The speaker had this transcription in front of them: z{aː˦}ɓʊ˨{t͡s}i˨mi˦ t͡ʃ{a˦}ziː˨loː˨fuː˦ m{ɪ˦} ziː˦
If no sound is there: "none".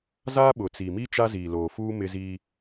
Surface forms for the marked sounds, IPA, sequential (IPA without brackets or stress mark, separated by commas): aː˦, t͡s, a˦, ɪ˦